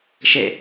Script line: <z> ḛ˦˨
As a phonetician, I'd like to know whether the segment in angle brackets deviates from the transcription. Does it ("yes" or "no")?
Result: yes